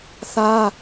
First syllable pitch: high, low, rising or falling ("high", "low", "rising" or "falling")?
high